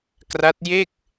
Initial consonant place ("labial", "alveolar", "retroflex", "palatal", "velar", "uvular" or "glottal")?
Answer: velar